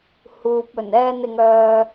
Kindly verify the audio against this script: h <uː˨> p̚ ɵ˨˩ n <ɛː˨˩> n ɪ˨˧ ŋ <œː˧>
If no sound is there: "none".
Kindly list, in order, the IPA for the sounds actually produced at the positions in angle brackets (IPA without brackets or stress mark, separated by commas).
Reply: uː˨, ɛː˧, œː˧